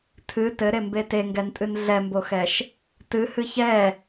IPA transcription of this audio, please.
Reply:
tʰ ɨ t ɘ ɾ e m b e t e ŋ ɡ ɛ n tʼ ɨ n ɮ ɛ m b o x ɛ ʃ | t ɨ h ɨ ç ɛ

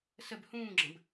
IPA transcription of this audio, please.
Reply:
s ə b h ũː ɡ͡ǁ ə̃ b

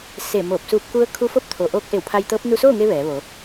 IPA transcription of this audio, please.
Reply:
s e˧˩ m oː˧˩ p̚ s uː˧ p̚ k u˧˥ ə̯ kʰ u˧˥ f o˥˨ p̚ t̪ʰ o˩ ʔ oː˧˥ k̚ ʔ e˧˩ w pʰ a˧ j t̪ ɤː˧˥ p̚ n u˧ s oː˥˨ ŋ e˧ ʋ ɛː˩˧ ʋ o˩˧

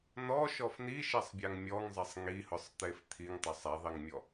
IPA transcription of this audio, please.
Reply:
n ɔ ʃ ɔ f n i ʃ ɛ sˤ bʲ a ŋ mʲ ɔ ŋ zˤ ɛ sˤ ŋ i h ʊ sˤ t̪ e f t̪ʰ i ŋ tˤ ɪ sˤ ɛ ðˤ i ŋ mʲ ɔ

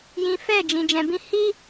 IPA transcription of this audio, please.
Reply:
j ĩ˨ f ɛ˦˨ d͡ʒ ĩ˨ d͡ʒ ɛ̃˨ b ĩ˧ h i˦

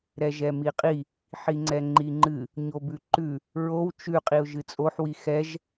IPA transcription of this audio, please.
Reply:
ɾ ɛ ʒ ɛ m i qʼ i | ħ i ŋ͡ǀ ɛ ŋ͡ǃ i ŋ͡ǃ ɨ | ɲ o b ʉ ǃ ʉ | ɹ o w t͡ʃ ʉ qʼ i ʊ̯ ʒ ɨ t͡sʼ o ħ w i x ɛ ʒ

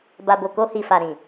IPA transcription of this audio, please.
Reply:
b a˨ b o˨ k o˧ h i˨ f a˨ ɾ ĩ˨

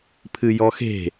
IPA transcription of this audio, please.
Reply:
pʰ ɨ j ɔ x e̤

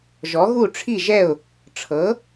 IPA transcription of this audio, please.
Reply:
ʒ ɔ˩˥ ɣ u˥˩ ʈ͡ʂʰ i˥˩ ʒ ɛ˥˩ ʊ̯ | ʈ͡ʂʰ ɤ˩˥

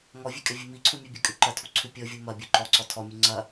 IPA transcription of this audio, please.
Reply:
ŋ ɔ vʲ ʉ kʼ ɛ vʲ ʉ m i ǀʰ u mʲ ʉ bʲ ɛ kʼ ʉ ǃ ɐ tʰ u ǀʰ ʉ pʲ ɔ vʲ u m ɐ bʲ u ǃ ɔ ǀ ɔ tʰ ɔ mʲ ʉ ŋ͡ǀ ɐ

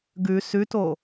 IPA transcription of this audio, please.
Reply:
ɡ ʉ s ʉ t o

